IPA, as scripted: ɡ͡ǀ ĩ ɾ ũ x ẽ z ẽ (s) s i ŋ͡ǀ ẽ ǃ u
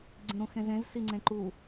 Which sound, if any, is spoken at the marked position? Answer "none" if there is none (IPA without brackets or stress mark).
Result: z